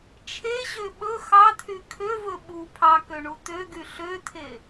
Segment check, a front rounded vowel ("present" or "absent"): present